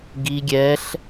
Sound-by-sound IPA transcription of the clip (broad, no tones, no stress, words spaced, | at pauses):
ɡi ɡʲɛɬ